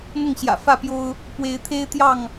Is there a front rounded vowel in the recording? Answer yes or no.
no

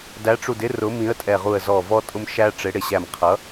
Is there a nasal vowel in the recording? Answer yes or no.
yes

